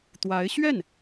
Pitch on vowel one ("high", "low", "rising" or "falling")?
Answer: rising